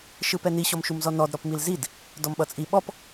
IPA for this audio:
ʃ ɯ p ɛ n i ɕ ɔ m ʃ u m z ɔ n ɔ d ɾ ɔ p m i l z i d | d ɔ m ɓ ʌ t͡sʼ i ɓ ɔ p

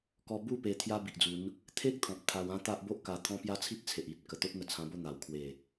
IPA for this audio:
k ɔ˧ b u˥˧ p e˧ t̪ʰ j a˦ b i˨ ʔ d͡z u˨˦ n | t̪ʰ e˦ k̚ t̪ʰ ɔ̃˨ p̚ t̪ʰ a˧ w ã˦ t̪ a˦ ʔ b o˦ ʔ k a˧ t̪ʰ ɔ̃˦ p j a˦ t͡sʰ i˦ t̚ t͡sʰ e˨ ʔ i˨ t̚ k ə˨˩ t̪ o˦ t̚ n̪ ə˨˩ t͡sʰ ã˧ b o˥˧ n̪ a˨˩ w kʰ w e˨˩

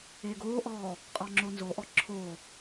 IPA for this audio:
eː ɡ oː ʔ ɔː | qʼ ɔ ŋ͡ǁ o n z o ʔ ɔ ǁʰ o

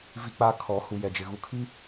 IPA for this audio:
v i˦ k͡p aː˦ kʰ ɔ˨˦ h u˨ j ɛ˨ d͡ʒ ɪ˨ ɣ u˨ kʰ i˦

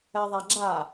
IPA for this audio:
ɛ ðˤ a ɡ͡ǁ a

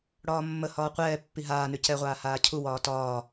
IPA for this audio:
ɽ ɒː mː ə h ɒː qʷ ɛː pː i ɦ aː n ʉ c ɛ ʁʷ aː h aː cʰ u w ɒː t ɒː

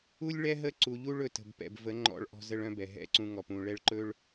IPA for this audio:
u˦ lʲ ɭ ɛ˦ ɦ ə˦ ǀ u˨ ʎ u˦ ɭ ɵ˨ t ə̤˨ b p ɛ̰˨ b v ə˨˦ ŋ͡ǃ ɔ̰˦˨ ɭ ʔ ɔ̤˦ z ə˦ ɭ œ̃˦ b ɛ˨ ɦ ɛ̰˦ ǀ ũ˦ ŋ ɔ˨ p ũ˨ ɭ ɛ˦ ɭ ǃ ɵ˦ ɭ

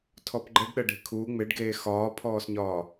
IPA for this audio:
tʰ ɔ p ɡ͡ǃ ə ɖ ɗ ə ɖ e̤ kʰ uː ŋ͡m ɪ ɖ ɡ eː x ɒː pʰ ɔː s ɲ ɒː

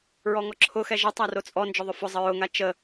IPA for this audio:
ɹ ɔ ŋ ɔ ǁʰ ʊ x ɛ ʒ ə tˤ a r o t͡sʼ ɔ n d͡ʒ ʊ ðˤ ʊ f ʊ zˤ ə ɹ ʊ ŋ a t͡ʃ ə

